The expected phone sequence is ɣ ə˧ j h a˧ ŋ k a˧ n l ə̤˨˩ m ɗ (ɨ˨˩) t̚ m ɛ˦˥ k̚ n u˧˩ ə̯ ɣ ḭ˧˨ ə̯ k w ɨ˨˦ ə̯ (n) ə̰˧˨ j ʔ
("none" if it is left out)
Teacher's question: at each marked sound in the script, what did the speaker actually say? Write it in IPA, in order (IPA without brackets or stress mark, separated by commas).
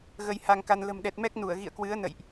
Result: ɛ˨˩, n